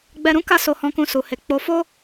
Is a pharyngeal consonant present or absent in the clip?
absent